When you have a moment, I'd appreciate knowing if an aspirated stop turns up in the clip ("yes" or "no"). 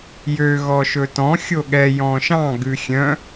no